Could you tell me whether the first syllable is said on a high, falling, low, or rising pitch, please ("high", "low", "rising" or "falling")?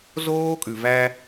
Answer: high